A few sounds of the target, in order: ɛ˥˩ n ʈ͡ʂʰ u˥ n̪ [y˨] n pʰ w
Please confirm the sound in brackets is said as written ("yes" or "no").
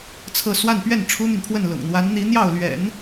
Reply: yes